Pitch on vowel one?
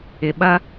low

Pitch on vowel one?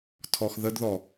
low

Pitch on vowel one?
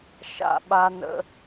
high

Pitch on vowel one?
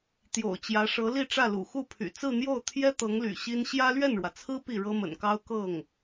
low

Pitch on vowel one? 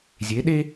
rising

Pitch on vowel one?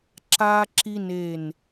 high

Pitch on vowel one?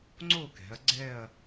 falling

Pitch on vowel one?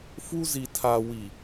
high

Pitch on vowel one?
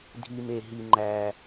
low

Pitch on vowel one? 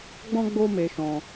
high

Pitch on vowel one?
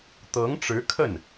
rising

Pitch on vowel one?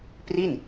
falling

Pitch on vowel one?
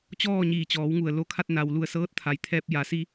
falling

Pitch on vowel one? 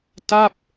falling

